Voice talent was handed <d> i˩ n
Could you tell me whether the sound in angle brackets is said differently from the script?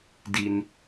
no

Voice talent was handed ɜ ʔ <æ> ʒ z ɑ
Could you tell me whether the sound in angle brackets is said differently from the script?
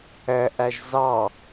no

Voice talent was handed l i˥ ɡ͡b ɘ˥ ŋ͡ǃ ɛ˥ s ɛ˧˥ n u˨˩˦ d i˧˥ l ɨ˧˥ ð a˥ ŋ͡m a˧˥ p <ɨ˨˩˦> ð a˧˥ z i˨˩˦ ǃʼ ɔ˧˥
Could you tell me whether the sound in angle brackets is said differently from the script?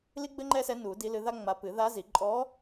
no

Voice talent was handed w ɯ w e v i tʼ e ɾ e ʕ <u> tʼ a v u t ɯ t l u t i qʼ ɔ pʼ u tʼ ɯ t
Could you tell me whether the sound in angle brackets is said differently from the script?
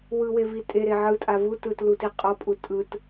yes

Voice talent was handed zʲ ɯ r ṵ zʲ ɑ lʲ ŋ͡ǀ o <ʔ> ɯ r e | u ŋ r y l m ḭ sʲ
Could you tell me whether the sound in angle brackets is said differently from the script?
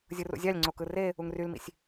yes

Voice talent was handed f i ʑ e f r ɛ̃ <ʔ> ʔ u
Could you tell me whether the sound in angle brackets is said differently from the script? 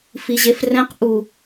yes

